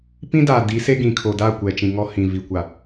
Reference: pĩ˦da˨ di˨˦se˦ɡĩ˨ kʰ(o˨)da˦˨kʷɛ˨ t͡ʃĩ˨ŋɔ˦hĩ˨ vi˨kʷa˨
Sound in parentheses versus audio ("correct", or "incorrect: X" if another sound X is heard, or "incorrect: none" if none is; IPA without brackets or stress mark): correct